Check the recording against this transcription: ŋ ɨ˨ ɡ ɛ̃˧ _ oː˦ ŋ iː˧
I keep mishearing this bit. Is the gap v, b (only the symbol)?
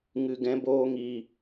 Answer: b